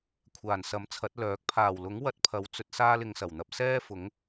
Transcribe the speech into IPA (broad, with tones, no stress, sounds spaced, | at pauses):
kʷʰ aː˨˩ n s ɐ˨˥ m t͡sʰ ɐ˨˥ t̚ l œː˨˥ k̚ pʰ aː˨˩ w l ʊ˨˥ ŋ w ɐ˧ t̚ pʰ ɐ˨˧ w t͡s ɵ˧ t̚ s aː˥ l ɪ˧ ŋ s ɐ˨˩ w n̪ ɐ˧ p̚ s ɛː˥ f ʊ˨˥ ŋ